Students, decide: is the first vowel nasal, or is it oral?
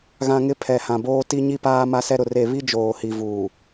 nasal